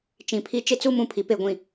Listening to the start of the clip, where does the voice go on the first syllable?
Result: low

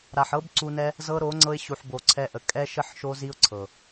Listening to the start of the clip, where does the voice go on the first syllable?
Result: low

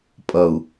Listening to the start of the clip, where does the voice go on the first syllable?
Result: low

